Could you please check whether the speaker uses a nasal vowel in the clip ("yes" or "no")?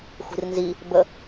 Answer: no